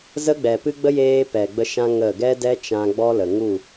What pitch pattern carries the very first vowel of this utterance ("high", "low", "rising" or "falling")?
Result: high